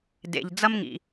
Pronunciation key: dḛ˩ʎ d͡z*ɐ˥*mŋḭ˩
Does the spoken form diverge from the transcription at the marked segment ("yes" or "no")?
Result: no